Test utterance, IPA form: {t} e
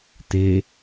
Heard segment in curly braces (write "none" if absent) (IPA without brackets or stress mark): t